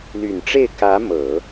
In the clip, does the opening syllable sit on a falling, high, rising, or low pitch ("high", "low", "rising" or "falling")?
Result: low